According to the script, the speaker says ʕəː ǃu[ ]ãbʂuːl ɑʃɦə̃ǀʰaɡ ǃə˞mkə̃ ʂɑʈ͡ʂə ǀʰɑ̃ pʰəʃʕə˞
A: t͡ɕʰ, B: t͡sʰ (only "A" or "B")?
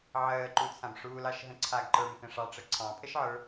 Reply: B